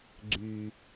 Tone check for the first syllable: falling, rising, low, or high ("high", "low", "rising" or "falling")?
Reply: low